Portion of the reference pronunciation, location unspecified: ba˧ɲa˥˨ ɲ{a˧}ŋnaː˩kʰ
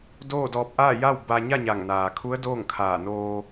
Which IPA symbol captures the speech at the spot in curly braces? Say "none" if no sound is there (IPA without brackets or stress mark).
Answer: a˧˩